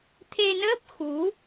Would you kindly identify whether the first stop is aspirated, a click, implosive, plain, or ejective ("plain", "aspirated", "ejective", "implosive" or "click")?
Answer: aspirated